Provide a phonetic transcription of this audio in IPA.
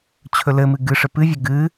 t͡ɕʰ ɵ l ɘ m ɨ ɡ ɨ ʂ ɘ p ɨ vʲ ə ɡ ɨ

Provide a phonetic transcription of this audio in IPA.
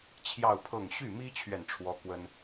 t͡ɕʰ j ɑ˥˧ ʊ̯ pʰ ɤ˥˧ ŋ ɕ y˥˩ m i˥ t͡ɕʰ ɥ ɛ˨ n ʈ͡ʂʰ w ɔ˥ k w ə˥ n

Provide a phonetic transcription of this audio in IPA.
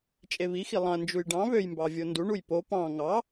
t͡ʃʼ e β i x i lˠ ɑ̃ ɐ̯ n d͡ʒ u j ɖ ɑ̃ β ø j m b ɑ vʲ o n d u ɳ u j p o p ɑ̃ ŋ ɑ

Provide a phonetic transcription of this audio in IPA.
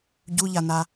ɟ u ʎ a n a

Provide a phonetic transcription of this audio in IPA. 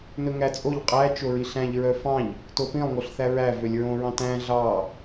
n ɵ ŋ æ t͡sʼ o ʎ qʼ æ t͡ʃ o ɹ i ɬ æ̃ ʎ ɹ œ f ɑ̃ ʎ | t o p ĩ lˠ ŋ o ɬ θ æ ɹ æ v ø lʲ ɹ õ ɹ ɑ̃ t æ̃ ɮ ɑ

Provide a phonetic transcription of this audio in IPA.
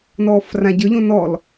n ɔː f r ã ɟ ə˞ ʎ õ n ɔ l

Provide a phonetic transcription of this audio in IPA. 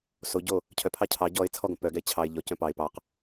s o ɟ o | cʰ œ pʰ ɑ cʰ ɑ ɟ ɔ ɪ̯ t͡sʰ ɔ ɡ õ p œ ɡ ɛ ɪ̯ t͡ɕʰ ɑ ɪ̯ ʎ ɔ c œ̃ p ɑ ɪ̯ p ɑ q

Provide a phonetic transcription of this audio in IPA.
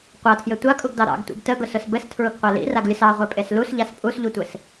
qʷ a tʰ j ɘ tʷ a kʼ u ɡ d ɑ ɾ ɑ̰ ɡ tʷ ḭ ɡ t ə ɡ ʊ s ʊ s b ɘ s tʰ ɹ ʊ ɡ qʷ a l ḭ r a ɡ lʲ ʊ s ɑ ʁʷ e pʼ e s l u s ʎ a s pʼ u s ʎ u tʷ ɘ s

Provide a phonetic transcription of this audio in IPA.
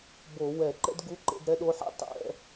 b o˧˩˧ w ɛ˧˩˧ ǃ ɛ̰˥ d ɡ u˧˥˧ ǃ ḛ˥˧ d ɾ ɛ˥ ɗ o˧˥˧ ħ ɛ̰˥ tˤ ɛ̰˧˥˧

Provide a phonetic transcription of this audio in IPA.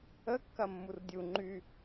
ə kː ɐ mː u r dʲ u ŋ͡ǃ y

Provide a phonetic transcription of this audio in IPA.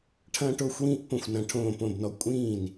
ʈʰ ɐ̃ː˦ ʈ o˥˨ xʷ w ĩː˦ ʔ p õ˥˨ xʷ n ɐ̃˦ ʈʰ õː˥˨ p õ˥˨ b n ɔ˦ kʷʼ ĩː˥˨ n

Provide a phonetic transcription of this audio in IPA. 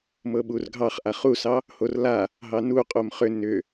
m ɤ ɓ u r ɡʱ ɑ χ ʔ a χ u s ɑ | h o r l a | ɦ ɑ n u qʼ o m χ ʏ n ʏ

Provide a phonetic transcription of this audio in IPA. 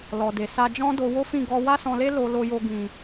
l ɔ˨ d e˨ s a˧ d͡ʒ ɔ̃˦ d o˧ w o˦ f ĩ˦˨ ɡ ɔ˧ w a˦ s ɔ̃˧ l e˦ l o˧ l o˧ j o˧ ɡ ĩ˨

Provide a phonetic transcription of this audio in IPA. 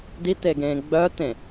d i t̪ e ɡ ẽː ɡ͡b œ t̪ ẽ

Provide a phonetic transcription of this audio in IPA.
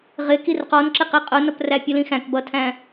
ʁ ɪ k i r q ɔ n ǁ ɪ q i qʼ ʊ n ʌ p r æ pʲ ʊ l ĩ x æ̃ k b ʌ tʰ æ̃

